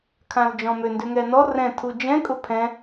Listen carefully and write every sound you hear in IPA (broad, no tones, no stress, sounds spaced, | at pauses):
kʰ ã l d͡ʒ ɔ̃ m ø n d ʏ ŋ ɛ n ɔ r ɛ̃ tʰ u d͡ʒ ɛ̃ kʼ ʊ pʰ ɛ̃